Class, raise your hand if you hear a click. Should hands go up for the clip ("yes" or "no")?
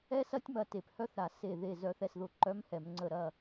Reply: yes